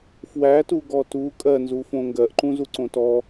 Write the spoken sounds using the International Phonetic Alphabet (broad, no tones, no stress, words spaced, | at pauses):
fwætuɡɔ tu kʼɜnzufõ ŋɡɜʔǃũzuǀõ tɔ